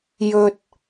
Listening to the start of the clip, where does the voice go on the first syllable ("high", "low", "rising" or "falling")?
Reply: low